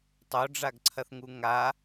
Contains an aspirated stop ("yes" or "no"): yes